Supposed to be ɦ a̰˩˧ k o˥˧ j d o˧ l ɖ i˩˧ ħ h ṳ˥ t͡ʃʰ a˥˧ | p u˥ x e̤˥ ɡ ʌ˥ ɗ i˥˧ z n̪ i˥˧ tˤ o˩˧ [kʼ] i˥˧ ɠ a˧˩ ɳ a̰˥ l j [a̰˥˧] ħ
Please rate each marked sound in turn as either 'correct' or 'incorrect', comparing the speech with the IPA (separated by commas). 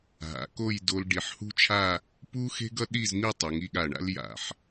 incorrect, incorrect